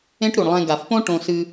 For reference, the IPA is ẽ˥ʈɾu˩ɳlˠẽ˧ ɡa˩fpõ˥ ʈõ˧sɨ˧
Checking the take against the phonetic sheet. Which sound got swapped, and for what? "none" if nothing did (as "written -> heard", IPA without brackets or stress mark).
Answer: none